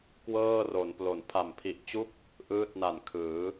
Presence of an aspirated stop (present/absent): present